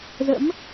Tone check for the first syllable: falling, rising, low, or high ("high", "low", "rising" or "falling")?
rising